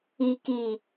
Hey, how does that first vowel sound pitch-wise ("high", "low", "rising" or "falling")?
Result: low